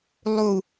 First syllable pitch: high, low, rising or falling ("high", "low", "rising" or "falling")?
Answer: low